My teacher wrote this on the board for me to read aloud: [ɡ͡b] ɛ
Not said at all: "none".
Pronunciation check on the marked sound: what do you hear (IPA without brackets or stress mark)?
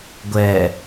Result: ɡʷ